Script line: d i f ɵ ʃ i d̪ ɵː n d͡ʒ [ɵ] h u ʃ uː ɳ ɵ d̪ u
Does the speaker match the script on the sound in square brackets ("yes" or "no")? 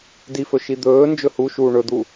yes